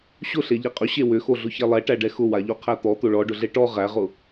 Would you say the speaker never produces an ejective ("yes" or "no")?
no